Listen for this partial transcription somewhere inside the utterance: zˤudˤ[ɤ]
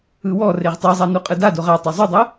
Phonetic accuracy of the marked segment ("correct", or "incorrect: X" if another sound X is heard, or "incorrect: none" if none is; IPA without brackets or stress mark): correct